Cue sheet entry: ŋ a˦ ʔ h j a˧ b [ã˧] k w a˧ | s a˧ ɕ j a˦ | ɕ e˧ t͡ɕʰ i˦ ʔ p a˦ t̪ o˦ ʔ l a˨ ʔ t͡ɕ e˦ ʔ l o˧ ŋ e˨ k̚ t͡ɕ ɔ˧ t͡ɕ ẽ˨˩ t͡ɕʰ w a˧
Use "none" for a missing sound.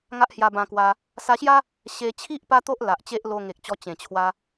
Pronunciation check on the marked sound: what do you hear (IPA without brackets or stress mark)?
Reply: ã˧